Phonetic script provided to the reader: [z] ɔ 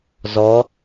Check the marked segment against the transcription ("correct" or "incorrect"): correct